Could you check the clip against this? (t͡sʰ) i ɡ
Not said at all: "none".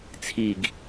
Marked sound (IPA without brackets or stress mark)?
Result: t͡sʰ